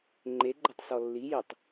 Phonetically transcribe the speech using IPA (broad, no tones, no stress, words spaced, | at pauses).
ŋ͡ǃeɡ͡ǃʏtˤsɔ lːijitˤ